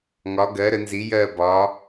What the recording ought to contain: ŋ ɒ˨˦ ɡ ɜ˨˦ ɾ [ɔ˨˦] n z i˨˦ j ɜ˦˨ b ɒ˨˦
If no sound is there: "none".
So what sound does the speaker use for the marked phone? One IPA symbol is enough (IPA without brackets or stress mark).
ə˨˦